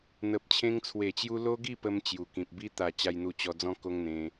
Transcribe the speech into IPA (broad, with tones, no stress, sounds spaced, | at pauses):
n̪ ə˨ p̚ t͡ɕʰ ẽ˧ ŋ t͡sʰ w e˨˩ t͡ɕ j u˧ l o˦ ɡ i˥˧ p ə˧ m t͡ɕ j u˨˩ k ĩ˨ p̚ b i˦ t̪ a˨˩ t͡ɕ a˧ j n̪ u˧ t͡ɕ ɔ˧ d͡z ɔ̃˦ k o˦ ŋ n̪ ẽ˧